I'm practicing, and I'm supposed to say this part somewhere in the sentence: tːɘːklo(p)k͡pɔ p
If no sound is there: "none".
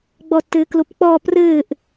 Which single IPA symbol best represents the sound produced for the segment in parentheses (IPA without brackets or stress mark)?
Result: p